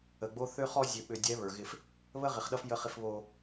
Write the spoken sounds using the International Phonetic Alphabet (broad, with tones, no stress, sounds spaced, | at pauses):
ə˨ ɡ͡b o˦ θ ø˦ χ ɔ˦ zʲ ø˨ ɓ ø˨ dʲ ɛ˨˦ β ə˞˨ ɣ ɪ˦ f | β ə˦ ʁ ɪ˨ χ ɗ ʌ˦ f j ə˦ χ ɪ˦ f β o˦